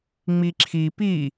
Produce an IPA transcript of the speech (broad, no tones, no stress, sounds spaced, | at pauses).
ŋ͡m i ǁʰ i p i